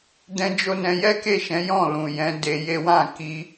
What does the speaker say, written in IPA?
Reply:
dɛ̃˦d͡ʒo˦nɛ̃˧ jɛ˦ke˦˨ʃɛ̃˨˦ jɔ̃˦˨lũ˨jɛ̃˨˦ de˧je˦ wã˦˨ki˧

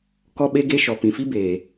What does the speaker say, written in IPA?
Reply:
kɔ˦ɓe˦ɡe˦ ʃɔ˨pĩ˨fi˦beː˨

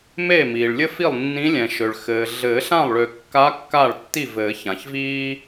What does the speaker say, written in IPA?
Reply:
me˥˩miː˩ɭlʲɘ˥fi˥˩lˠ nːĩ˧˥lʲɛ̃˩ʃø˩ɭ xɘː˩ ɮɘː˨˩˦ɬã˥˩lˠɭø˨˩˦kːa˧˥ kːa˥˩ɭtːi˥˩ vɘː˨˩˦çã˩çviː˥

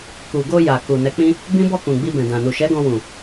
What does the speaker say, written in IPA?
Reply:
ku˨ɡo˧ ja˨ ku˨nɛ˨˦k͡pĩ˦ | bĩ˦bɔ˦˨kũ˨ ɡ͡bi˧bɛ̃˨dã˨ nu˨ʃɛ˨˦ɡɔ̃˧ wũ˨

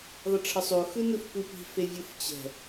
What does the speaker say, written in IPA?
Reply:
ðˤʌʈ͡ʂʰʌsˤo xɯnɯfkʷipi̤ fevʲɯft͡ɕɛ̤

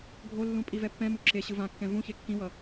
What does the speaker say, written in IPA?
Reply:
ɡʱolːũ pʼivɛpːɛ̃mu ǁe ɕɯvãkːɛ̃ vũçe kːĩwʌ

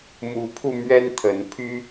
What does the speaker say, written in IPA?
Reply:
mu˨˦pʰu˧ mɥɛ˦nt̪ʰə˨˦npʰy˦

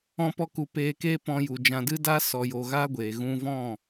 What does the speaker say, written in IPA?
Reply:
ɔ̃˧ pɔ˧ku˨peː˧ keː˦pɔ̃˧ju˨d͡ʒã˧ dɨ˦daː˦ sɔ˧joː˧ɣaː˦ ɡʷeː˨ ɣũ˦ vɔ̃˦˨

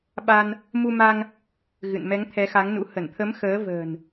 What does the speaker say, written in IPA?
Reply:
ɓa˧n | mu˧ma˧ŋ | ɣɨ̰˧˨nmɛ˨˦ŋ t̪ʰɛ˨˦xa˨˦ŋnṵ˧˥ hə˧˩nt̪ʰə˨˦m xəː˨˦və̤ː˨˩n

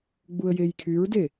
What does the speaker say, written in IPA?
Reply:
ɡ͡buə̯jejkʰyɹde

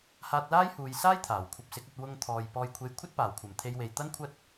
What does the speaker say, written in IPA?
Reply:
haː˧t̚laː˥jhuː˨jsaː˥j t̪ʰaː˨˩wkʷʰɐ˧p̚sɪ˨˥k̚ɐ˧t̚ wʊ˧ŋt̪ʰɔː˨j pɔː˧jkʷʰe˧j kʷʰɐ˥t̚paː˨˩wkʷʰɐ˨˩mt̪ʰe˨˧j we˨jt̪ɐ˥nkʷʰɐ˥t̚

